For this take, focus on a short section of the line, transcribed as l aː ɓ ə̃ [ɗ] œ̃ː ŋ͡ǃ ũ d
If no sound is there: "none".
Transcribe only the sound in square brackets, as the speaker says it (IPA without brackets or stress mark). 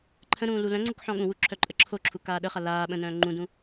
n